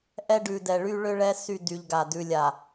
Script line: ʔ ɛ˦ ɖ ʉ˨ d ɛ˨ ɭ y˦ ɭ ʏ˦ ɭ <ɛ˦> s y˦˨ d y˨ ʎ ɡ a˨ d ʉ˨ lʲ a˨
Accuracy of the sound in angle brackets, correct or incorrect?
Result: correct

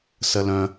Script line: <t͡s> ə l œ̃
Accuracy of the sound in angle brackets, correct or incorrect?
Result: incorrect: s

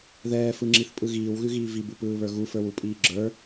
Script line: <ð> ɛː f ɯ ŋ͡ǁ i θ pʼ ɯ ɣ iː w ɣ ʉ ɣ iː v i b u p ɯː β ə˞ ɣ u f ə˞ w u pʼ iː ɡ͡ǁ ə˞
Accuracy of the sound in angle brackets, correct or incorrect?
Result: correct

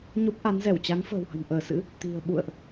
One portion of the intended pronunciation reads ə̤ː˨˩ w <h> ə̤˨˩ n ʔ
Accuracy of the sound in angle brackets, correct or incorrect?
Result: correct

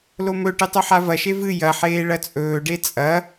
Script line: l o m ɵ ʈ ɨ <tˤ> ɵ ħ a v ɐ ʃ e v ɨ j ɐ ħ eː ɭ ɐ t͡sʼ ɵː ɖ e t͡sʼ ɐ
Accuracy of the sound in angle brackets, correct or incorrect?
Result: correct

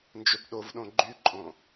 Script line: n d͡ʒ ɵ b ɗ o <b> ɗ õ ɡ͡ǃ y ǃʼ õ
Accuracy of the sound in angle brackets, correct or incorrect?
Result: incorrect: v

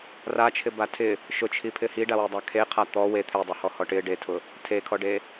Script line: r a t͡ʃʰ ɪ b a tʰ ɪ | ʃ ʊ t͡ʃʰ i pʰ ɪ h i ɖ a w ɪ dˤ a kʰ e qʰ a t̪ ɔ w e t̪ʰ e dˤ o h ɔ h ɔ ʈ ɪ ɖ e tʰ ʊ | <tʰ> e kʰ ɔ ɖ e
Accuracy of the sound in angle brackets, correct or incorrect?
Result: correct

